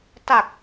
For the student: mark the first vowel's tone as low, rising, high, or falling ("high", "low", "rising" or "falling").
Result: low